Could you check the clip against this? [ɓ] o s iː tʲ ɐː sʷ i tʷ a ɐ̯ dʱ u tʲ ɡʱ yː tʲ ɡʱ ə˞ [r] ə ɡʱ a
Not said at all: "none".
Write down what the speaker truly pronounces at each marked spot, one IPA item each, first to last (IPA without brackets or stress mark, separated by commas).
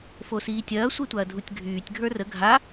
f, r